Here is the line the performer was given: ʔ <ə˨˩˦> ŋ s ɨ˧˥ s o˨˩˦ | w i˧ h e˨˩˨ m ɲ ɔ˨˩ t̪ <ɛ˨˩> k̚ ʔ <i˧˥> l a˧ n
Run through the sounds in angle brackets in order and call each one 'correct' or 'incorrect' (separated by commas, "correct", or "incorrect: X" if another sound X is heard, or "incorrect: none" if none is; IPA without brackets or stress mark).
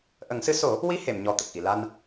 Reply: correct, incorrect: ə˨˩, incorrect: i˨˩˨